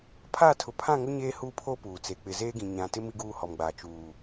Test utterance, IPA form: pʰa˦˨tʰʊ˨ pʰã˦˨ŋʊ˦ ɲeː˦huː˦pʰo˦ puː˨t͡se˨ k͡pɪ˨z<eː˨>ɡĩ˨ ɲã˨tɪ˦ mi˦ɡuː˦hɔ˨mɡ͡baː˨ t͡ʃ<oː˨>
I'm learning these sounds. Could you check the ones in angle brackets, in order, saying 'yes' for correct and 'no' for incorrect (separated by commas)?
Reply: no, no